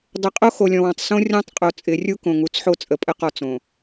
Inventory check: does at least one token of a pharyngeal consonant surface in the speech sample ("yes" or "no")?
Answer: yes